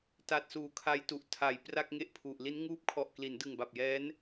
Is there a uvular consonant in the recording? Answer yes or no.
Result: no